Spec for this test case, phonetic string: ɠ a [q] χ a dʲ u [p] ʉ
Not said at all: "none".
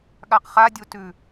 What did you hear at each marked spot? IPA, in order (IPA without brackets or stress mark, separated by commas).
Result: q, t